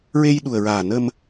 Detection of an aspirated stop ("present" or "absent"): absent